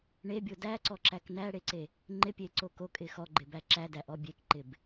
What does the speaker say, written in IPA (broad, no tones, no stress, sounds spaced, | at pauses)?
ɳ e bʲ o d æ ǀ ɔ ǁ æ k n æ ɽ e ǀ e | ŋ͡ǃ ɪ pʲ e ǀ o k o kʼ ɪ x ɔ ɡ͡ǃ ɪ b æ ǁ æ d æ ʔ ɔ bʲ e k ǃ ɪ b